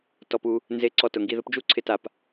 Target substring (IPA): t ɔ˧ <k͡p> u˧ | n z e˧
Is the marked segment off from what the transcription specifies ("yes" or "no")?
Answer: yes